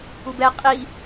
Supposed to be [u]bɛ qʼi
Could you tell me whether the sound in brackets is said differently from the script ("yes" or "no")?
no